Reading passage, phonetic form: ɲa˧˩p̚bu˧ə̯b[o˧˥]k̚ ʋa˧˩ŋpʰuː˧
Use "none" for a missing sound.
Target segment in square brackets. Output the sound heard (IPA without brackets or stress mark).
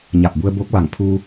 o˧˥